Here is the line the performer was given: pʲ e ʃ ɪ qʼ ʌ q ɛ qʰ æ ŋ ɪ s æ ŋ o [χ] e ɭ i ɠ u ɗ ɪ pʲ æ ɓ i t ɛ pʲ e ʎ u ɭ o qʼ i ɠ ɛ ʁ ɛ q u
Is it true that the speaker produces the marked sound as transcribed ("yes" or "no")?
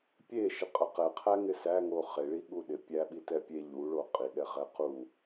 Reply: yes